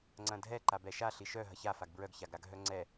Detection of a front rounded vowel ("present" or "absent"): present